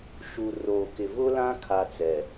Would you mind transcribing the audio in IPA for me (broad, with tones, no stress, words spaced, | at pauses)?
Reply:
ʃu˨ ro˨ kɪ˨ vʊ˦lã˦ kʰa˦t͡sɛ˨